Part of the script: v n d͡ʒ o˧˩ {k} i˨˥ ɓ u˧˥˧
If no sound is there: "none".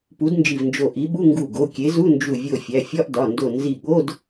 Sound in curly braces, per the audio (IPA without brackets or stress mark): ʔ